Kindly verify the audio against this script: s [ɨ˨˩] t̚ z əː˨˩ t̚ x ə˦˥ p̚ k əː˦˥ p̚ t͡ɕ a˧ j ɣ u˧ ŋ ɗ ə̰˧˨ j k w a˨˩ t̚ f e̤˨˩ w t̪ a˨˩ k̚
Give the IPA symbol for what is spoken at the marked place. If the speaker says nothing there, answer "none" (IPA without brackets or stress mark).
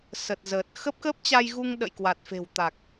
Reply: ə˨˩